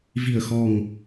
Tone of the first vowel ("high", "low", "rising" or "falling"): low